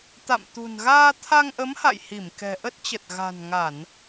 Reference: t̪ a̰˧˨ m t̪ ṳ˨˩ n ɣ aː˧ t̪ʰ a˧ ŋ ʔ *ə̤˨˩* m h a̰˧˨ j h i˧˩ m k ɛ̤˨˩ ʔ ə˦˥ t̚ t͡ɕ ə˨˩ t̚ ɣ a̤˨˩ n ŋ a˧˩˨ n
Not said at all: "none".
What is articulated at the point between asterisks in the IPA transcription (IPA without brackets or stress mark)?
ə˨˦